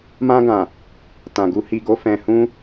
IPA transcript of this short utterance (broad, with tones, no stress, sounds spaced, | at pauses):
m ã˧ ɡ ã˨ | t ã˨ ɡ u˧ h i˨ ɡ o˧ f ɛ̃˨ h ũ˧